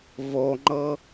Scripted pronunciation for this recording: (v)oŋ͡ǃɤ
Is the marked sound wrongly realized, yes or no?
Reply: no